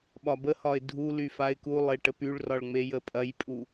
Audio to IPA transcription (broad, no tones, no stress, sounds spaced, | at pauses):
ɓ ɒ b ə h ɒ ɪ̯ dʱ u l y f a ɪ̯ k u lˠ e ʈ ə p y ɭ r ɒ ɭ ŋ͡m e j ə pʼ ɐ j pʼ u